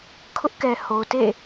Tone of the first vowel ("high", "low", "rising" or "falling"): high